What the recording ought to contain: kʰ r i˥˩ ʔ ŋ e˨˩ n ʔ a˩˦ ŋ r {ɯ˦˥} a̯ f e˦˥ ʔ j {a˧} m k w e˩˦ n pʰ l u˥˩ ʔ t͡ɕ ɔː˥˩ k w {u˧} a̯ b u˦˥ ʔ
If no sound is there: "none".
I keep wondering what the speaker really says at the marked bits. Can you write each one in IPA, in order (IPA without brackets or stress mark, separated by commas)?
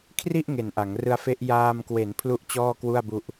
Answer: ɯ˦˥, aː˧, u˥˩